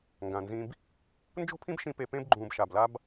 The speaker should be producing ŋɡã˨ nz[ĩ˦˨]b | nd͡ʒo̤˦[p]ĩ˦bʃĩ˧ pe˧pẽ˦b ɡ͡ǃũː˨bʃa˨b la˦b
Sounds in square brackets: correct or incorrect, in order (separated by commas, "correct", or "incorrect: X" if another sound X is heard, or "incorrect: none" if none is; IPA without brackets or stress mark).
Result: incorrect: ĩ˧, incorrect: pʰ